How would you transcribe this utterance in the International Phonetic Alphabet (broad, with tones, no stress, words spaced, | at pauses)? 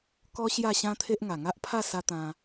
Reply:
kɔ˦ ɕja˥˧ɕã˦ t̪ʰe˦ʔ ŋa˨˩ŋa˦ʔpʰa˥˧ sa˦ t̪ã˧